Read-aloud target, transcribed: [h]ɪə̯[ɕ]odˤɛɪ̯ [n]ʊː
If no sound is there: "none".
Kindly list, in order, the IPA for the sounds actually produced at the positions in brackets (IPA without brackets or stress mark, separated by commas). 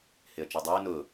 h, t͡ʃ, n